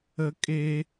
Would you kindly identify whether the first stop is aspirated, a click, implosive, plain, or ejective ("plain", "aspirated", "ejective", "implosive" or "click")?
ejective